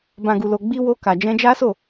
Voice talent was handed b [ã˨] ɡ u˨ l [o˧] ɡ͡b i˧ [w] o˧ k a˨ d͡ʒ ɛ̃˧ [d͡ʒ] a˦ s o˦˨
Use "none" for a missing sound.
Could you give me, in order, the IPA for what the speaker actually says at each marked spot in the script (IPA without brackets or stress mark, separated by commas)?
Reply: ã˨, o˨, w, d͡ʒ